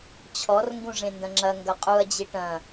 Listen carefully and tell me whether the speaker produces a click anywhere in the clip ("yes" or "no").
yes